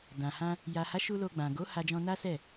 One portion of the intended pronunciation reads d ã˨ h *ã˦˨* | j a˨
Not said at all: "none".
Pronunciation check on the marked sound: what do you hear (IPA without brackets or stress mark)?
ã˧